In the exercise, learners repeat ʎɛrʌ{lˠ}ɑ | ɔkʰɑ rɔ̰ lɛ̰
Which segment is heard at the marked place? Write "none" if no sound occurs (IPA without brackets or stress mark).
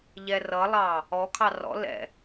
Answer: lˠ